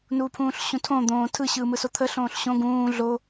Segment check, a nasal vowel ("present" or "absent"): present